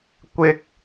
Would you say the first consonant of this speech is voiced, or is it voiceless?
voiceless